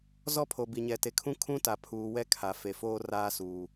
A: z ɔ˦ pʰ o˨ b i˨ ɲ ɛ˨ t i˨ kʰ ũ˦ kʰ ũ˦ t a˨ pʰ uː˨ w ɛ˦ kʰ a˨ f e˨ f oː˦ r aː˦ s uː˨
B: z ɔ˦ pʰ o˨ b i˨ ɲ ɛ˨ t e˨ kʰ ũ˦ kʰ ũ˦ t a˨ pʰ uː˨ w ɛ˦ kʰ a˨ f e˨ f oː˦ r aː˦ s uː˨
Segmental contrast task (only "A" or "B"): B